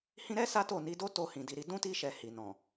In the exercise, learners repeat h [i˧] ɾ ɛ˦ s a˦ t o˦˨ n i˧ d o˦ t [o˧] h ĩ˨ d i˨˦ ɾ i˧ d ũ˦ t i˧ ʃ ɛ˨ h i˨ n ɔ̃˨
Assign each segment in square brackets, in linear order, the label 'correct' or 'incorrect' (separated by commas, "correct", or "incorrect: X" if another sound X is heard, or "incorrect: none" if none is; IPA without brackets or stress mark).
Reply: incorrect: ĩ˧, correct